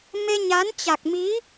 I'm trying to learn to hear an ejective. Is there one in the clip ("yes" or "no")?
no